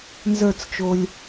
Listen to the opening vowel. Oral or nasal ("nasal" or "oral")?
oral